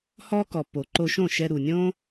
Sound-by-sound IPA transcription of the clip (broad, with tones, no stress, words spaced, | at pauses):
hɔ˦kɔ˨pːo˨ ǃo˧ʃõ˦˨ʃɛ˧ ɾu˨nʲõ˦